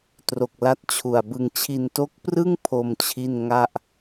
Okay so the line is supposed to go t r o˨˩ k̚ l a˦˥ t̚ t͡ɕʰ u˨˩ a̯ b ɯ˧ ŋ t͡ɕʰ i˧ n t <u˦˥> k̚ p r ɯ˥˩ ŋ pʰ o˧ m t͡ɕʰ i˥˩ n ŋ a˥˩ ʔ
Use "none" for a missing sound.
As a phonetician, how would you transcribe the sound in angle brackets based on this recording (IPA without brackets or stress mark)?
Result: o˦˥